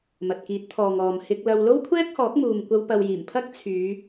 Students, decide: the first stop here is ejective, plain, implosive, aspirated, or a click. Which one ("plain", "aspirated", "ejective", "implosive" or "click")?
plain